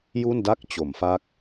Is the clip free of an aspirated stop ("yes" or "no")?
yes